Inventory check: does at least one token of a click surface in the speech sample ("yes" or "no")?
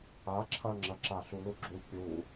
yes